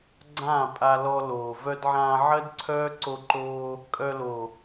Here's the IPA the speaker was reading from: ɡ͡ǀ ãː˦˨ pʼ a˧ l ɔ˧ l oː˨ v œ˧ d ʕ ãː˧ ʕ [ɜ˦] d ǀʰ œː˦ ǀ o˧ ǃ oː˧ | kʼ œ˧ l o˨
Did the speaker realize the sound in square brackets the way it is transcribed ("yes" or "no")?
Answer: yes